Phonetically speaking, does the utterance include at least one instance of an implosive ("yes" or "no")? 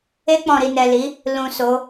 no